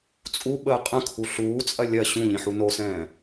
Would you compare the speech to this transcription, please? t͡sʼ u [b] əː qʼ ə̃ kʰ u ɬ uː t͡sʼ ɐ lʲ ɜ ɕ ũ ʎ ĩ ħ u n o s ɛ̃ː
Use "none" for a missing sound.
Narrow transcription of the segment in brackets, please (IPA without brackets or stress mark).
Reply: ɓ